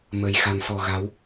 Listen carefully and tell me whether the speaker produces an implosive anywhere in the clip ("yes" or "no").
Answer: no